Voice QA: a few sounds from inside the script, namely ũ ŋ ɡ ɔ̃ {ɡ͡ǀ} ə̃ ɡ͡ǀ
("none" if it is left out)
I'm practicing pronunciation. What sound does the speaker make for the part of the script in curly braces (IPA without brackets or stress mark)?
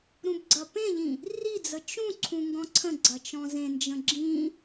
ǀʰ